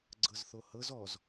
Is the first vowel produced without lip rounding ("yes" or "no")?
yes